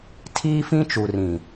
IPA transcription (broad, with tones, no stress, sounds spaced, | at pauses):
tʰ iː˦ f ĩ˦ t͡ʃ u˨ r ĩ˨